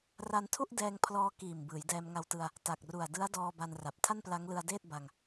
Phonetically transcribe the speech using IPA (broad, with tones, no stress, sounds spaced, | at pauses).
r a˧ n tʰ u˥˩ ʔ d ɛː˧ ŋ pʰ l ɔː˧ k iː˨˩ m b ɯː˩˦ j d ɛː˧ m ŋ a˧ w t ɯ˧ a̯ | t a˨˩ k̚ r u˨˩ a̯ d ɯ˦˥ a̯ d ɔː˧ b a˧ n r a˨˩ p̚ tʰ a˥˩ n p l a˦˥ ŋ l ɯ˧ a̯ d eː˥˩ t̚ b a˧ ŋ